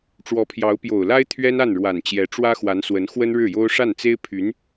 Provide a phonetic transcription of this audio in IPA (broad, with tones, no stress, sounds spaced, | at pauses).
ʈ͡ʂ w ɔ˧˥ pʰ j ɑ˧˥ ʊ̯ p j o˨˩ ʊ̯ l a˥ ɪ̯ t̪ʰ ɥ ɛ˥ n a˥˩ n ɻ w a˨˩ n t͡ɕ j ɛ˧˥ ʈ͡ʂ w ä˥ x w a˧˥ n s w ə˧˥ n x w ə˥ n ɻ ɻ̩˥˩ j o˥ ʊ̯ ʂ a˥˩ n t͡s e˥ ɪ̯ pʰ y˧˥ n